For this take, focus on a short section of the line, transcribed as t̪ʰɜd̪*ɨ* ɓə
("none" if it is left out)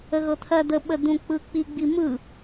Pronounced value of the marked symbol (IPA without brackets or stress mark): ə